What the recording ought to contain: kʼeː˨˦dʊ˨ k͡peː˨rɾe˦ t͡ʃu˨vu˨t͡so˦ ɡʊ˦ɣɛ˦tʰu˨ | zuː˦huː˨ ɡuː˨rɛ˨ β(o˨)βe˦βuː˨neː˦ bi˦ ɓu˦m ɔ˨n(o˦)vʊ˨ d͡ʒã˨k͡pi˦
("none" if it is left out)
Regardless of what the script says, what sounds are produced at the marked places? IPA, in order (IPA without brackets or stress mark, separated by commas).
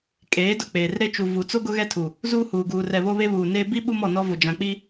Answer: o˦, ɔ˦